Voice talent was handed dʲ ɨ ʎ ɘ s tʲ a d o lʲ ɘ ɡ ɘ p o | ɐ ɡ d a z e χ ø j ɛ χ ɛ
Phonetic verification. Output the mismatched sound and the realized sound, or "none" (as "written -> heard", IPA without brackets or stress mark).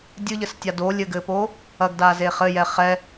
ø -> ɘ